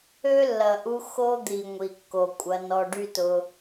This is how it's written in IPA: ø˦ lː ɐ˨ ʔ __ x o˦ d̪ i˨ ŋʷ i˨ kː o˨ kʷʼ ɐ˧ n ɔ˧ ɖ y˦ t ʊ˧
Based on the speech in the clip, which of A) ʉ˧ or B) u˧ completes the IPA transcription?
B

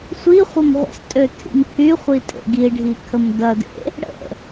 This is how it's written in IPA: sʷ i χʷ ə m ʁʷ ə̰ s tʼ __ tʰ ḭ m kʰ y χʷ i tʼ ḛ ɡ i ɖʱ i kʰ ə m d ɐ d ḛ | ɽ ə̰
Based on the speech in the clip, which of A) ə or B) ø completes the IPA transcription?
B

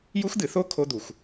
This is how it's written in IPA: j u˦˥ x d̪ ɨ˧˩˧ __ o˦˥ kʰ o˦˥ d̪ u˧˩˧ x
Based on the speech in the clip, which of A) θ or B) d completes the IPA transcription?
A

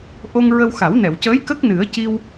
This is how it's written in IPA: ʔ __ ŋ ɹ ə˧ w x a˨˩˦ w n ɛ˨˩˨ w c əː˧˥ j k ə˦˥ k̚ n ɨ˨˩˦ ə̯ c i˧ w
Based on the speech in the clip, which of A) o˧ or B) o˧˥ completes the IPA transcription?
A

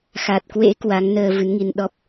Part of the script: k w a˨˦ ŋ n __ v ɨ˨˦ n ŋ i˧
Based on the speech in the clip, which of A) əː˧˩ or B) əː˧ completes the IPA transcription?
B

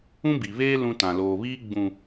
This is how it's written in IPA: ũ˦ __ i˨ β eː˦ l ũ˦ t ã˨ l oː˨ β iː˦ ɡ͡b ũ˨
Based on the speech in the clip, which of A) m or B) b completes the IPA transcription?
B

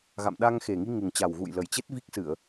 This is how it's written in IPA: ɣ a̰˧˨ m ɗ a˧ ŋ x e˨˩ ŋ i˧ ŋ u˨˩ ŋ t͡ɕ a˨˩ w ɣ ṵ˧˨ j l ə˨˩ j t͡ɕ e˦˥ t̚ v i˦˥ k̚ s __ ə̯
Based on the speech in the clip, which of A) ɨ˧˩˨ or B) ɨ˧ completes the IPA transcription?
A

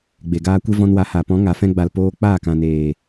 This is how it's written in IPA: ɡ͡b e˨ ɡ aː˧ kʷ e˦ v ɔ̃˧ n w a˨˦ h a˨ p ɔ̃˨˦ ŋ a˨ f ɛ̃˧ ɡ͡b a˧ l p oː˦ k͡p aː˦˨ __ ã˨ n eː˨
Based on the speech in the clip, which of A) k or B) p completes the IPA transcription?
A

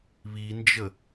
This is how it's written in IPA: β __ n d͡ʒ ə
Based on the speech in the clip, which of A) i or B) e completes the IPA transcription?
A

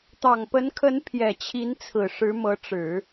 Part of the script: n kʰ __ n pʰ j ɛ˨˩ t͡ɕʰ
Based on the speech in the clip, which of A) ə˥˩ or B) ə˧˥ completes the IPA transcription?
B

